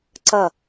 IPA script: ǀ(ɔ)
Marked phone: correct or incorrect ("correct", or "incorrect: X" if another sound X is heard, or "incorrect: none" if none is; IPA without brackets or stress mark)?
incorrect: ʌ